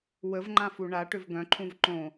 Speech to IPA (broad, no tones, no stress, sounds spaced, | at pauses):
w ə v ŋ͡ǃ ã f u ɳ a ʈ ʏ v ɡ œ̃ ǃʰ ũ v ǃ õ